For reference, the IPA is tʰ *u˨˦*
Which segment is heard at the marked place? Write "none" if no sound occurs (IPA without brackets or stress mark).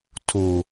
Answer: u˨